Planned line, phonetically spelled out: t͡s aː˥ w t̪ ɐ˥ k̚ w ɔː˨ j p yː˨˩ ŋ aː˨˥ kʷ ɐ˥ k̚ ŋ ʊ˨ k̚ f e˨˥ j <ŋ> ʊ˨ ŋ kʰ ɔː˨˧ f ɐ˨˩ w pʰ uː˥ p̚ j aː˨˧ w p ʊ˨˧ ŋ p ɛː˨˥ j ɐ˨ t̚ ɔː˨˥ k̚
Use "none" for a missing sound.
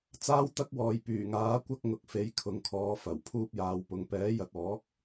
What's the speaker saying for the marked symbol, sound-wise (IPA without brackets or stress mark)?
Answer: kʰ